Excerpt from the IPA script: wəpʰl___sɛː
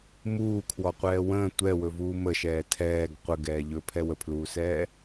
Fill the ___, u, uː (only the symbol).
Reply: uː